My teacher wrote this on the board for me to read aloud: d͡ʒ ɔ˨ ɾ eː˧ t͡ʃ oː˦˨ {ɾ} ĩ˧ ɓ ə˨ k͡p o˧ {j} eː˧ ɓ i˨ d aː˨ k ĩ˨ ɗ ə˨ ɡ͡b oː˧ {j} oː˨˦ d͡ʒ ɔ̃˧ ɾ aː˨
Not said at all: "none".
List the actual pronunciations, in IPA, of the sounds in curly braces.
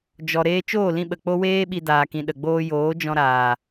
l, w, j

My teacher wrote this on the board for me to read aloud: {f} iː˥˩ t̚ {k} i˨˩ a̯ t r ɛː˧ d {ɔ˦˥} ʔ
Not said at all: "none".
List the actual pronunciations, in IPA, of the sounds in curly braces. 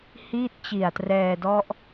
h, t͡ɕ, ɔ˦˥

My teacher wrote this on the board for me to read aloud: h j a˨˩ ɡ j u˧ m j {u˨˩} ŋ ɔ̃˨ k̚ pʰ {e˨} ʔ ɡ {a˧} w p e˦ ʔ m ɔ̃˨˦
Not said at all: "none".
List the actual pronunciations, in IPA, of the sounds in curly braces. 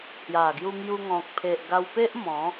u˧, e˨, a˧

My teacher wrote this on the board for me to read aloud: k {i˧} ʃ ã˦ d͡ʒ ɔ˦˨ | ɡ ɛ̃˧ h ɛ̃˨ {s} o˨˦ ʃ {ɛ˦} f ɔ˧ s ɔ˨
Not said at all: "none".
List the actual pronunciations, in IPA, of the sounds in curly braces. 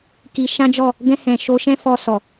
i˧, ʃ, ɛ̃˦

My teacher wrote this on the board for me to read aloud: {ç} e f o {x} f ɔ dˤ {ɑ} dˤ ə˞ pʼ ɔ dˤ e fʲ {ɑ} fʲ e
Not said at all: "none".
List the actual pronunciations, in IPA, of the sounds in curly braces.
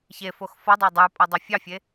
ç, x, a, ɑ

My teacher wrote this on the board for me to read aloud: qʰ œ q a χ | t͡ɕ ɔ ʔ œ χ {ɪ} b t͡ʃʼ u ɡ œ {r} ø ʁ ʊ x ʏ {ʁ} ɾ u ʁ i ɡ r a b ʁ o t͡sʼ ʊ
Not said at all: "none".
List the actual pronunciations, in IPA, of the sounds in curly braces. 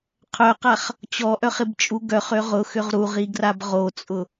ɪ, χ, ʁ

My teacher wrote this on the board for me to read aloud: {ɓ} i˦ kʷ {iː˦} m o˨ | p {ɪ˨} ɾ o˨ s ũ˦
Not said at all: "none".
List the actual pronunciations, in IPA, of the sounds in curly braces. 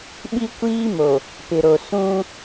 ɓ, iː˦, ɪ˨

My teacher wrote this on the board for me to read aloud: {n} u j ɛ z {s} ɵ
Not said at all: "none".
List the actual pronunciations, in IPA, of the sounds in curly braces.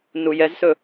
n, s

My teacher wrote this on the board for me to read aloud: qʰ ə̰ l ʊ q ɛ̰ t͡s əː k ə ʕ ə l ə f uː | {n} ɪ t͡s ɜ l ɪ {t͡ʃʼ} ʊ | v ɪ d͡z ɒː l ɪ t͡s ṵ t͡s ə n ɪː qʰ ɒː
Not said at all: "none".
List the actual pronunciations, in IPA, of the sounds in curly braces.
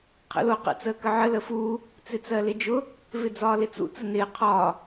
t͡s, d͡ʒ

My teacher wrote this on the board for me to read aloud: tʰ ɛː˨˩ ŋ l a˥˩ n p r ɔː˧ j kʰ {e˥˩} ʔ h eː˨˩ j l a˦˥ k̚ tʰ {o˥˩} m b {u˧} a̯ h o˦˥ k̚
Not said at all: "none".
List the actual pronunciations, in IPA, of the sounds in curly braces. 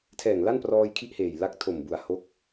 i˥˩, o˨˩, u˨˩

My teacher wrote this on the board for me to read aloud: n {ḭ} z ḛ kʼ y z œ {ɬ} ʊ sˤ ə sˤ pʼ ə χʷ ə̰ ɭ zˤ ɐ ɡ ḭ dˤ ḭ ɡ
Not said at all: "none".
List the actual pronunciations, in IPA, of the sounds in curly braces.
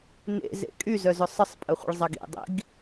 ḛ, z

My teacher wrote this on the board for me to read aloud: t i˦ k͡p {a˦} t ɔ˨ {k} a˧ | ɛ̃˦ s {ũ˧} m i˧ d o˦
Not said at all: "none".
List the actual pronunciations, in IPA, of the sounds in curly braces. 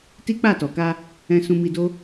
a˦˨, k, ũ˧

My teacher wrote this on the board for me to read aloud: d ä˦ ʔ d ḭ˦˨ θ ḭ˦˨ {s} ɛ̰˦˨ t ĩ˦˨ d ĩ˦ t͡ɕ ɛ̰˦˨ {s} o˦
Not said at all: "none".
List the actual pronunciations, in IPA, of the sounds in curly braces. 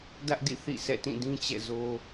s, z

